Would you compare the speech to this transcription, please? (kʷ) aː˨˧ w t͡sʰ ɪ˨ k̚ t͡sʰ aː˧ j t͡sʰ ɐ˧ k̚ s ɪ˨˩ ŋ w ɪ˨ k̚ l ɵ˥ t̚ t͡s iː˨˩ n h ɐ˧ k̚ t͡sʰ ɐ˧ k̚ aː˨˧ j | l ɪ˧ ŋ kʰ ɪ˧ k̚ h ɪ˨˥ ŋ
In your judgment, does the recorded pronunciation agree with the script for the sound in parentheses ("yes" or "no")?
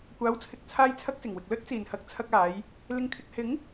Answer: yes